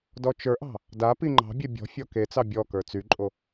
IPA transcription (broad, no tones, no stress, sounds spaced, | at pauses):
d ɔ t͡ʃ ə˞ ʔ ɑ̤ | d a p i ŋ͡ǃ ɑ̤ bʲ e bʲ ɔ̤ fʲ ɔ k e t͡s ɑ bʲ ɔ k ə˞ t͡s y ǃʼ o